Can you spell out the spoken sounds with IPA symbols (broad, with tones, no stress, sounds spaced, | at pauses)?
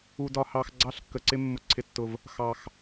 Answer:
u˨ d ɒ˨ h ɑ˨ x ɡ͡ǀ ɑ˦ ɬ kː ə˨ ǀ ɪ˦ mː ʊ˨ ǀʰ ɪ˨ tː ʊ˨ v | x ɑ˨ x